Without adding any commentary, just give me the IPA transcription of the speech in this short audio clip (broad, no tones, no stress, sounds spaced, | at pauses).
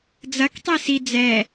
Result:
d͡z ɐ k tˤ i s i d͡z ɛ